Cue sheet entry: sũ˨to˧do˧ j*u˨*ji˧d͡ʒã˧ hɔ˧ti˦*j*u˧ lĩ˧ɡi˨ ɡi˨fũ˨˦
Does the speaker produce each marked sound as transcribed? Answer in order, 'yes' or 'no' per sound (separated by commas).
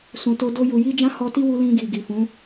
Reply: yes, no